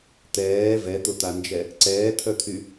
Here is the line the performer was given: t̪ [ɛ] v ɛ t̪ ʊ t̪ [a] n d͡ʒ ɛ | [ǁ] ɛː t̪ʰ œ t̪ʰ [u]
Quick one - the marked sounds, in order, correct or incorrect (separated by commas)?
incorrect, correct, incorrect, incorrect